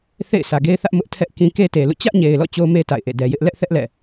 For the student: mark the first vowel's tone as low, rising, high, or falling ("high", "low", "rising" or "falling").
falling